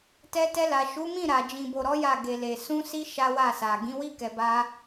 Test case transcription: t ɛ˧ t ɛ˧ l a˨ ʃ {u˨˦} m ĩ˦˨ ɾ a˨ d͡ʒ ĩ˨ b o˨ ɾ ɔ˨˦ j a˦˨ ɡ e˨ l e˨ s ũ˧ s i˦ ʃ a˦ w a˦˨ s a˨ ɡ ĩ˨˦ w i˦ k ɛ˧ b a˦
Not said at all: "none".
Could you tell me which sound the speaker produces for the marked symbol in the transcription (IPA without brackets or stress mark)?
u˨˦